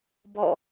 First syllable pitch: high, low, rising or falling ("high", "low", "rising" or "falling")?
falling